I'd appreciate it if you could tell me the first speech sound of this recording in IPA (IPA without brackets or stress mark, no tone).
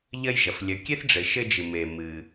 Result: ʎ